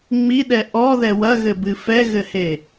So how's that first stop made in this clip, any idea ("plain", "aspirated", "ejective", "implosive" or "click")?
implosive